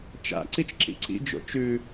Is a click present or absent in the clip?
present